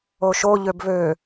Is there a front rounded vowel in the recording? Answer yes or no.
yes